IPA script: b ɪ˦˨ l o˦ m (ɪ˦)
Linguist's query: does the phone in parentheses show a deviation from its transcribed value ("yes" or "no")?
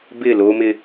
no